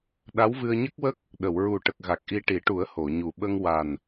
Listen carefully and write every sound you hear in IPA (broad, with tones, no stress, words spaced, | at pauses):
ɗa˧˥wvɨ˧ə̯ɲə˦˥k̚wə˦˥k̚ | ɗə˨˩˨wɹu˨˩ʈə˨˩k̚ ɣa˨˩k̚ʔi˧ʈi˨˩˦ʈu˨˩˦ə̯ ho˨˩˨ɲu˨˩ ɓə˧ŋwa˨˩n